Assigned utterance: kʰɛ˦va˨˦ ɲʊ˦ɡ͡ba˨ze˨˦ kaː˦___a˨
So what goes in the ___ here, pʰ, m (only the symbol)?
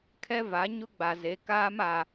m